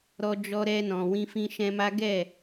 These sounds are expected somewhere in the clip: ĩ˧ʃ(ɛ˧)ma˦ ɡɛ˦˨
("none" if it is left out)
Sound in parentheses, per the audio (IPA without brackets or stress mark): ɛ̃˧